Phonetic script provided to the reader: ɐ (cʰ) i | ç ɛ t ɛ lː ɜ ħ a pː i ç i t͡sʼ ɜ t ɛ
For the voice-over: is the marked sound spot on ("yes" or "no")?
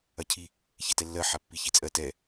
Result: yes